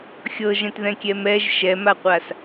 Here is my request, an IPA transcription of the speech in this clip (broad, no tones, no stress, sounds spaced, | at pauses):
xʲ ɤ ʒ ɛ̃ t ð ɛ̃ kʲ ɛ m ɛ ʒ ʃ ɛ m a qʷ a s